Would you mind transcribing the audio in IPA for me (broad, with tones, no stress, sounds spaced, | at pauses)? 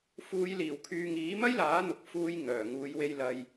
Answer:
f uː˨˧ j l iː˨˩ w kʰ yː˨ ŋ iː˨˥ m ɐ˥ j l aː˨˥ n̪ ʊ˨ k̚ f uː˧ j ŋ œː˨˩ ŋ uː˨˧ j w e˧ j l ɐ˨ j